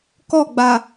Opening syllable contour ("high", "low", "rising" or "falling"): falling